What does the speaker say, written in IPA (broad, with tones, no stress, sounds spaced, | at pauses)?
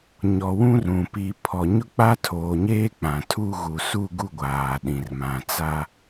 ɲ ɔ˨ w ũ˦ r ũ˨ p i˨ pʰ ɔ˨ ɲ ʊ˦ k͡p a˦ tʰ oː˨ ɲ eː˦ k͡p ã˨ tʰ u˦ ɣ u˨ s u˦˨ ɡ u˦˨ ɡʷ aː˨ ɗ ĩ˨ r m ã˨ t͡s a˦